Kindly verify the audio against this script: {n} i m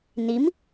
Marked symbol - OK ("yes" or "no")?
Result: yes